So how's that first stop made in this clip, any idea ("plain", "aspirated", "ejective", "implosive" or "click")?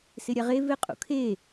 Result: ejective